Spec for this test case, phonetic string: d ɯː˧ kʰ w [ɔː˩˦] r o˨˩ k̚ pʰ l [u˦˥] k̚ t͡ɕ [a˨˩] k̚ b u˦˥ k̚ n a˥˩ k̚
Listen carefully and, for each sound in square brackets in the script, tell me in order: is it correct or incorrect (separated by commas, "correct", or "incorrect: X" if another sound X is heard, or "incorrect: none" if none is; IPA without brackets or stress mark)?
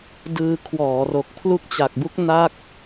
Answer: correct, correct, correct